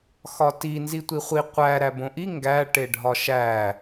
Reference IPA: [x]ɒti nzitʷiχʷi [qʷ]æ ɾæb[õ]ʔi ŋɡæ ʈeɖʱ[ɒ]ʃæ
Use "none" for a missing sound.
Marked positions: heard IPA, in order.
x, qʷ, õ, ɒ

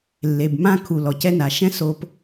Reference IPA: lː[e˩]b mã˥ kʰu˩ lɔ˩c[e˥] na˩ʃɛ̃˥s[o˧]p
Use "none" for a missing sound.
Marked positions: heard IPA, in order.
e˩, ɛ˥, o˧

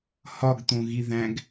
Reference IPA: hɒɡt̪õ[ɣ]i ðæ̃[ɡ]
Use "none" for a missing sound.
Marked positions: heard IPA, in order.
ɣ, ɡ

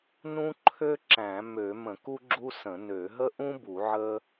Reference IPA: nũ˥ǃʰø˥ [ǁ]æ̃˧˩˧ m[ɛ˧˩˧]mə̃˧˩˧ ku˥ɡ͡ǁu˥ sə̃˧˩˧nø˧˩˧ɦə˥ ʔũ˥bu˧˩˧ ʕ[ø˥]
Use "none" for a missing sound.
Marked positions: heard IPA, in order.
ǁ, ø˧˩˧, ə˥

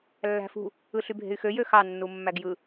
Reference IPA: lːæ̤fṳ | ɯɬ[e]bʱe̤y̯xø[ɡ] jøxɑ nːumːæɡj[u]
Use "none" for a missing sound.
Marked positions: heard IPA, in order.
y, none, ɯ

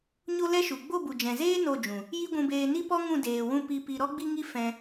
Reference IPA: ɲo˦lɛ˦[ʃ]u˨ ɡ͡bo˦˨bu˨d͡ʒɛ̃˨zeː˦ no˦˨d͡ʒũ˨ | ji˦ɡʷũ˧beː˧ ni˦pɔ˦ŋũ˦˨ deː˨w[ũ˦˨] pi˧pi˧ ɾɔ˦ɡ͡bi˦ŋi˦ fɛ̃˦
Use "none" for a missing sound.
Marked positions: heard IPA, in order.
ʃ, ũ˦˨

